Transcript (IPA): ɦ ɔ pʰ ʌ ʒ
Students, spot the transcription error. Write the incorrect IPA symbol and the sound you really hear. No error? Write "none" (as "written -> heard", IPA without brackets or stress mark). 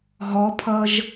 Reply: none